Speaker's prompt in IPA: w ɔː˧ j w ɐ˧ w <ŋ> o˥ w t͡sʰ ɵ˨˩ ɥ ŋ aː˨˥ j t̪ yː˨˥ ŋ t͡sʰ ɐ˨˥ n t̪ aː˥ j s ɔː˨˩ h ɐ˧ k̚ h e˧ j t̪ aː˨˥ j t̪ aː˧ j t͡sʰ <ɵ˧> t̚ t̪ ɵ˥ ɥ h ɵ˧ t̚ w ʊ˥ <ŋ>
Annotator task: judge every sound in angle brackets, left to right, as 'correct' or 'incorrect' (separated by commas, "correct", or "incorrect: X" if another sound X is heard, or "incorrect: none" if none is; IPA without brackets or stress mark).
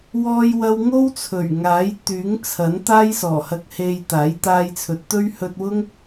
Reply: correct, incorrect: ɵ˨˥, correct